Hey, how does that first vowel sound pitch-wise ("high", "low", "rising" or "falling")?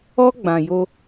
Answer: high